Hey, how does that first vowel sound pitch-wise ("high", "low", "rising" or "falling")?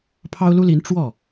high